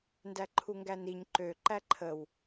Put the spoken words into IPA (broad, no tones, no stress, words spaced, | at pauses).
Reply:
ndæǃʰuŋɡæniɲ ǃø ǃæǃʰəw